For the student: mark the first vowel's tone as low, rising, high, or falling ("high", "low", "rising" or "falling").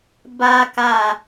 high